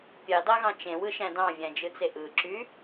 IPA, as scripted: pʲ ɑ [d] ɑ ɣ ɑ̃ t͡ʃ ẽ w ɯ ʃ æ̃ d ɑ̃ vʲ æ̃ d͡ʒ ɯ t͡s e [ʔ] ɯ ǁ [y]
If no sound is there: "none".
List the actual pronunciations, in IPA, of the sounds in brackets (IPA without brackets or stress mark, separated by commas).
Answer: d, ʔ, y